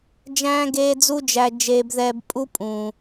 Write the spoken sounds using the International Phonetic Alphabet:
d͡ʒ æ̃ː˦ ɡ eː˦ d͡z u˦ d͡ʒ æ˧ d͡ʒ eː˧ b ð ɛː˧ b pʼ u˦ pʼ ũː˨

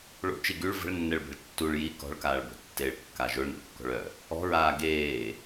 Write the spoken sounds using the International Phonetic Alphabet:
ɭ o̰ t͡ʃ i ɡ y ɭ v ə̤ ɭ nː ɛ ɭ b e̤ ɭ tː u ɭ j i k ɔ̤ ɭ k aː ɭ b o̤ tː e ɭ kː a ʒ o ɭ n o̰ ɭ kː ɔ̤ ɭ œ | ɔ̤ ɹ aː ɡ eː

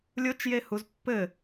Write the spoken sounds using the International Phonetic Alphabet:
lʲ o t͡ʃ j e h u z pː ɘ

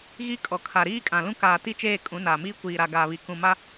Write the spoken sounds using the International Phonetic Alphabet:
ɣ i˦ kʼ ɔ˨ kʰ a˨ ɾ iː˦ kʼ ã˨ l ũ˦ k aː˨ t i˦ t͡ʃ eː˦˨ kʼ ũ˨˦ n aː˨ m iː˦ kʷ iː˨ ɾ a˨ ɡ aː˨ β i˨ k ũ˨ m a˦

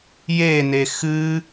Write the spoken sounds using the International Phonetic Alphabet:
j e n e x ɨ

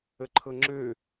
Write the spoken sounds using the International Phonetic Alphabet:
ə ǃʰ ɤ ŋ͡ǁ ø

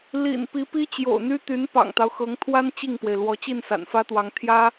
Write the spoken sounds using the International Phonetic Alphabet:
l ḭ˨˩ n p i˧˥ p i˥ t͡ɕ j o̰˨˩ ʊ̯ n̪ y˥ t̪ y˧˥ n p ɑ̰˨˩ ŋ t̪ ɑ˦ ʊ̯ x ɤ˧˥ ŋ t̪ʰ w a˥ n t͡ɕ i˥˩ ŋ p w e˩ ɪ̯ l w ɔ˧˥ t͡ɕ i˥˩ n s a̰˨˩ n f ä˥ t̪ w ɑ˧˥ ŋ t̪ʰ j ä˥

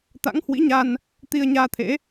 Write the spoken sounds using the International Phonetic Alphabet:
t̪ a̰˧˥ ŋ h w ḭ˧˥ ɲ a˧ n | t̪ i˧ ə̯ ɲ aː˧ t̪ʰ ḛ˧˥

